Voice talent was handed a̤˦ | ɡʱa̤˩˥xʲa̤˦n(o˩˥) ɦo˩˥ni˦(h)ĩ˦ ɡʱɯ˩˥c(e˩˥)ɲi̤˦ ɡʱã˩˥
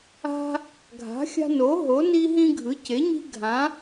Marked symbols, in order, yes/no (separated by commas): yes, no, yes